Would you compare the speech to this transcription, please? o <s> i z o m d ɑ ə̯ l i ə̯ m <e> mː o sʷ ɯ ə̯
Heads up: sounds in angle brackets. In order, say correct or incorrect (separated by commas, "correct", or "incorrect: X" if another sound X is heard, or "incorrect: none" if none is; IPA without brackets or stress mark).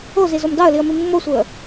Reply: incorrect: z, incorrect: i